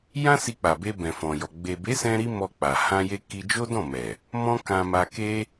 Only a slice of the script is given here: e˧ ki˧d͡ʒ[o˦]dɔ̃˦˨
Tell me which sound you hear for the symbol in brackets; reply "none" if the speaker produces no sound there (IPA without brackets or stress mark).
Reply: o˦